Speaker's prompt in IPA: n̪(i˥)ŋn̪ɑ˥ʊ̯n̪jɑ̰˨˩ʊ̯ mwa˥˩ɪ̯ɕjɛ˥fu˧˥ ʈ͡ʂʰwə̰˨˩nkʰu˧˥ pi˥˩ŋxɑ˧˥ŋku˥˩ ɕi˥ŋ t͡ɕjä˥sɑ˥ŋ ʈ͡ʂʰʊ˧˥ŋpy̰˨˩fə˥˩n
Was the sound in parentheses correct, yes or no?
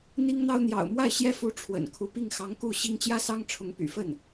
yes